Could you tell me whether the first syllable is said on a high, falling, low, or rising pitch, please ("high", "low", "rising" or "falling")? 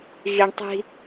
low